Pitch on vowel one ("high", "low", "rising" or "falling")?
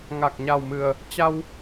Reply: low